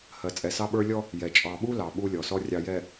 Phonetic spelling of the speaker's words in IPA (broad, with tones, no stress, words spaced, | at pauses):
hɜ˨t͡sʼɛ˨sɑ˦ɓə˞˦ lʲɔ˦ | jɛ˨ t͡ʃʼɑ˨ɓu˦ lɑ˨ɓu˦lʲɔ˨sɔ˦ rʲɑ˨jɛ˨